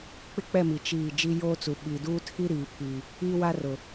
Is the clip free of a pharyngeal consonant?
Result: yes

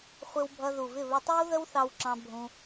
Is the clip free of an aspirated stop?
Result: yes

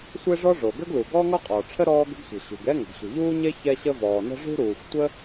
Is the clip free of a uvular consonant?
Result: no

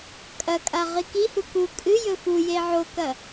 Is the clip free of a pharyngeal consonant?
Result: no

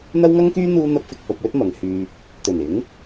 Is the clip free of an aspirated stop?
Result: yes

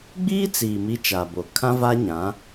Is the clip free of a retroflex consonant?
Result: yes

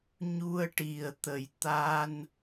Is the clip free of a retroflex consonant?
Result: no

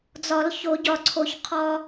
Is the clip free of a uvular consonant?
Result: no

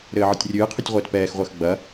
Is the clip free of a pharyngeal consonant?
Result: no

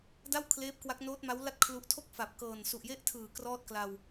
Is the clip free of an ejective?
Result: yes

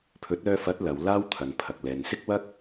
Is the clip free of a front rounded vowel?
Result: no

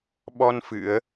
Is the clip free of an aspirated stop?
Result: yes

